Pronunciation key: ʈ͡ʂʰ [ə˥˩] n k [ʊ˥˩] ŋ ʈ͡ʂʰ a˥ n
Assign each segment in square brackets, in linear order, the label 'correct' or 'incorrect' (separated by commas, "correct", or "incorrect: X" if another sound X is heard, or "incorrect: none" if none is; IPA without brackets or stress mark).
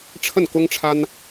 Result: correct, incorrect: ʊ˥